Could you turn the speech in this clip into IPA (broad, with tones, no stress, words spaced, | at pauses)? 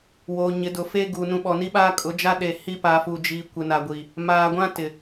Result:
woː˨ ɲɪ˨˦dʊ˨ fe˦ ɡu˨ nũ˨ɓɔ˨ni˦ɓaː˦ kʼʊ˨˦d͡ʒa˦ ɗe˨ hi˦pa˨fu˨d͡ʒiː˨ kʷɪ˨na˨ɡʷi˨ | maː˨ɡʷã˦ tɪ˨